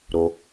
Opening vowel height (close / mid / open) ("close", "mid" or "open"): mid